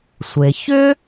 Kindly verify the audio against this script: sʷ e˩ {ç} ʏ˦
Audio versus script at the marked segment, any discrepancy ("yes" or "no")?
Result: no